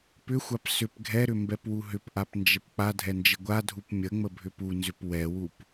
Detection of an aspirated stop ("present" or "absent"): absent